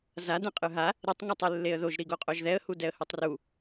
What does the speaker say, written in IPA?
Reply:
z a d ɛ̃ qʼ ɯ ɦ a | ɾ i tˤ ŋ ʌ tˤ e lː e ə̯ ð o ʒ ɾ i ɡ o qʼ o ʒ ð ɛ ə̯ h u d ɛ ə̯ h ɯ tˤ r u

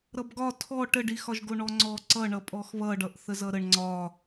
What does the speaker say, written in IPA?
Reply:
ɾ ʌ b ɡ ɒ tʰ ɔ ʈ ə ɖ i x ɒ ʒ ɡ o ɳ ɔ ŋ͡ǀ ɔ ǀ ʌ ɳ ʌ pʼ ɔ x β ʌ ɖ ʌ ʔ θ ə z ʌ ɾ ə ɳ ŋ͡ǀ ɒ

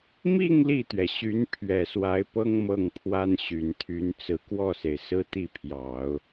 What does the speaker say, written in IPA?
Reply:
m i˥˧ ŋ l i˥˩ t̪ ɥ ɛ˩ ɕ y˧˥ n pʰ ɥ ɛ˨˩ s w a˧˥ ɪ̯ p ɤ˥ ŋ m ɤ˥˩ ŋ pʰ w a˥ n ɕ y˨˩ n t̪ʰ y˧˥ n t͡s ɹ̩˨˩ k w ɔ˥˩ s e˩ ɪ̯ s ɹ̩˥ t̪ i˥˩ pʰ j ɑ˨˩˦ ʊ̯

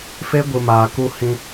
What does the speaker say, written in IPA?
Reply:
f e˦ ɡʷ ɨ˨ m aː˨ k u˧ h ĩ˧

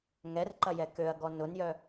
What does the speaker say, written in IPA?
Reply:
ŋ ɛ r ǃ ɐ j ɛ k ø ɐ̯ ɡ ɔ n ʊ n j œ

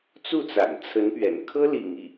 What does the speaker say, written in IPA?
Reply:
t͡s u˥˩ t͡s a̰˨˩ n t͡sʰ ə˧˥ n p ɥ ɛ̰˨˩ n kʰ ɤ˥ l ḭ˨˩ ŋ i˥˩

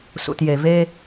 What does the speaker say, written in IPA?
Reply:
s ṵ˩ t j e˩ v e˧

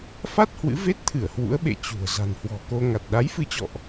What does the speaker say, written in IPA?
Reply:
f a˦˥ t̚ h w ɨ̰˧˥ v e˦˥ t̚ t̪ʰ ɨ˧˩ ə̯ h w ṵ˧˥ ə̯ ɓ ḛ˧˨ t͡ɕ ṳ˨˩ ə̯ z a̤˨˩ n h w ɔ̤˨˩ k o˧ ŋ a˨˩ t̚ ɗ a˨˦ j f ɨ˨˦ t͡ɕ ɔ̰˧˨ ʔ

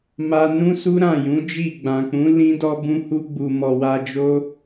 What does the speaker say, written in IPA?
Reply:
m a˧ n ũ˦ s u˦ ɾ ã˦˨ j ũ˨˦ d͡ʒ i˦˨ ɡ͡b ã˨ k͡p ũ˨˦ l ĩ˦ d ɔ˦ b ũ˧ h u˧ ɡ͡b u˨ m ɔ˨ w a˧ d͡ʒ o˦

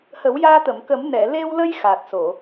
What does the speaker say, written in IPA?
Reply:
h ə˨˩˦ w j aː˧ t̪ ə˨˩˨ m k ə˨˩˦ m n ɛ˨˩˨ l e˧ w l ə˧ j x aː˨˩ t̚ s o˨˩˨

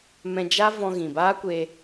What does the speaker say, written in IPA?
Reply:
m ɛ̃˧ d͡ʒ a˦ v ɔ̃˧ ɣ ĩ˨ b aː˦ kʷ e˧

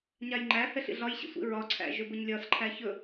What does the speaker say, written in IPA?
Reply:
ɲ a j ŋ͡ǃ æ h ɛ ɬ ḭ ɮ ɒ j ɕ ḭ sʷ ḭ ɹ ɒ ǀʰ æ̰ ʒ ɵ b ə ɲ lʲ ɒ s ǃʰ æ ç ɵ

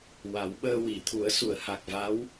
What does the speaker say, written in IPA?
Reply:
w a˨˩˦ w ɓ əː˧ w i˨˩˨ t̪ʰ u˨˩˦ ə̯ s u˨˩˨ ə̯ h a˨˩ k̚ v a˧˥ w

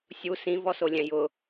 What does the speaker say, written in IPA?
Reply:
sʲ u s ĩ v ɔ s o lʲ ɛ̃ j ʊ

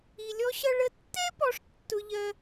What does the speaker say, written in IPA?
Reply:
i˧ lʲ ɔ˥ ɕ ʌ˥ ɭ ə˧ tː ɛ˥ p ɔ˧ ʂ tː ʊ˥ ʎ ɜ˥

